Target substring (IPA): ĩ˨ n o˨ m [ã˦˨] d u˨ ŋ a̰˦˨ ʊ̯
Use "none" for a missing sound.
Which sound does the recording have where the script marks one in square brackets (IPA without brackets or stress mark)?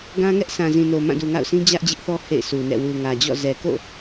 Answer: ã˦˨